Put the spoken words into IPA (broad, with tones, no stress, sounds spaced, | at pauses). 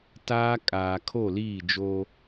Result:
t aː˦ kʼ aː˨ kʰ o˦˨ l iː˦˨ d͡ʒ oː˦